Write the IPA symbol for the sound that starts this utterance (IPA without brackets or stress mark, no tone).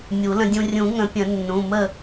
mʲ